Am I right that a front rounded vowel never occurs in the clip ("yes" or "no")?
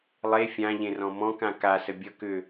no